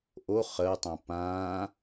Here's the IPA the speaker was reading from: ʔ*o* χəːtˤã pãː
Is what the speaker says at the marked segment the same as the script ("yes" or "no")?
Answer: yes